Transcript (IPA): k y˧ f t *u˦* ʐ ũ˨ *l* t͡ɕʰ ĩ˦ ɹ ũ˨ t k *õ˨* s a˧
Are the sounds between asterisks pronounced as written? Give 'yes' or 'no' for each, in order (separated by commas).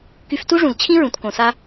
yes, yes, yes